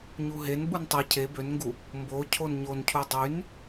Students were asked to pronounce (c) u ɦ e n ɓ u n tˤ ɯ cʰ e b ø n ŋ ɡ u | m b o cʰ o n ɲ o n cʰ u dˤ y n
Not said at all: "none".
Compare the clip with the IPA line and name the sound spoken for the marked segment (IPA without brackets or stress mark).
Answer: ɲ